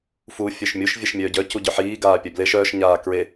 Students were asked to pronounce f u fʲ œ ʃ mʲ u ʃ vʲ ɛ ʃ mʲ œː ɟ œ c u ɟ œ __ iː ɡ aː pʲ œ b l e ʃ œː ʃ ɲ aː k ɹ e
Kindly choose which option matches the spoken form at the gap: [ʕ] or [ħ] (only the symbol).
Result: ħ